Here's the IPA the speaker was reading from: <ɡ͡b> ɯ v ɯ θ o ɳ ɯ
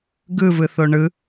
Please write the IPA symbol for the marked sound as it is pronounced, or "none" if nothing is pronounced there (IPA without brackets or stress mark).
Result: ɡ